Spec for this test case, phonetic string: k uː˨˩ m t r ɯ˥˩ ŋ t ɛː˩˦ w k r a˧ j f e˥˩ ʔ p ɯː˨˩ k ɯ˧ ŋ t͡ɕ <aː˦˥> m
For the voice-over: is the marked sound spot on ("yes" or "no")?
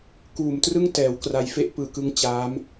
yes